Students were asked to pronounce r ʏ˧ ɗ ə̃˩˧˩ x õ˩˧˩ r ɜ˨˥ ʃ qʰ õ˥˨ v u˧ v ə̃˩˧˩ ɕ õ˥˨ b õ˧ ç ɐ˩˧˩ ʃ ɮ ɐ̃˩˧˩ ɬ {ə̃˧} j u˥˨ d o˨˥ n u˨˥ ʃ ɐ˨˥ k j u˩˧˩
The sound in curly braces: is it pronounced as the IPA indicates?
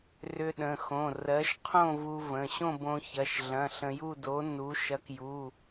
yes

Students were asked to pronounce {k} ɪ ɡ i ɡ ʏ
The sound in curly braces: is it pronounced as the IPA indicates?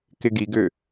yes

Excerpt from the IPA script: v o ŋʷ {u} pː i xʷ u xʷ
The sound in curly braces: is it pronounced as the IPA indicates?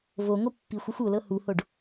no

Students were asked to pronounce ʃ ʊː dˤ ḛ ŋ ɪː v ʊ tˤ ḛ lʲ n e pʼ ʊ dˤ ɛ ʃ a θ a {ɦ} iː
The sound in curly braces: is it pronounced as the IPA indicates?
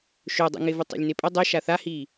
no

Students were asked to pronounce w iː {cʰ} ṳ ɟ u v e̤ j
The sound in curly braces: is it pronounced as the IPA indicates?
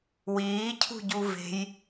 yes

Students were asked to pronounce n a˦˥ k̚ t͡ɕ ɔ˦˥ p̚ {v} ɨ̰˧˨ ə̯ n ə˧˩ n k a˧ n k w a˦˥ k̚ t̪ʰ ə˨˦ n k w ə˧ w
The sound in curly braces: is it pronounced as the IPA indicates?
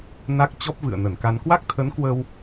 yes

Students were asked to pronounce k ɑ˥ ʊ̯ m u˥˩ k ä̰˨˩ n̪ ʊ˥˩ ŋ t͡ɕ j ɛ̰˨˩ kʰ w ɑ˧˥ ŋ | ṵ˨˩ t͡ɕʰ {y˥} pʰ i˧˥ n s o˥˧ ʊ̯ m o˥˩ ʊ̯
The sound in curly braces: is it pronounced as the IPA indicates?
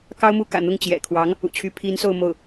no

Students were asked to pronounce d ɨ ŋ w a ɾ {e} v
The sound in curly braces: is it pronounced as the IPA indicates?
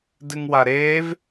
no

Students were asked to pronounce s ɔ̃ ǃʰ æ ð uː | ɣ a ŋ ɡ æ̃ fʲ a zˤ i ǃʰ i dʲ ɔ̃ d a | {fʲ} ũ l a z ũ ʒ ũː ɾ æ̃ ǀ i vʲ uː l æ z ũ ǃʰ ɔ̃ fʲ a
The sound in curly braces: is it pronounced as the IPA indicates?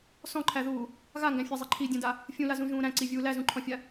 yes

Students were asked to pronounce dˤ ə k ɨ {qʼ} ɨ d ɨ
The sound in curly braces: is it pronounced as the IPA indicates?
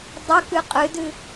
yes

